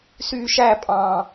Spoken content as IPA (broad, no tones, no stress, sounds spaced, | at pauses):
s yː ʃ æ pʼ ɑ̃ː